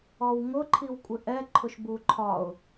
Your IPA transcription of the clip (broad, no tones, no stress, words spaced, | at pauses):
ɔwŋʊ ǃʰiwkʷʼɪʔɛ ǃʰʊʃbuǃʰɒʊ̯